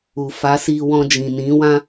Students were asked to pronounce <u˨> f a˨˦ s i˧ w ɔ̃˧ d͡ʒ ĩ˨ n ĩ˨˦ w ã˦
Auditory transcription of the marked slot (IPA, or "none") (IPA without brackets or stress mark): u˨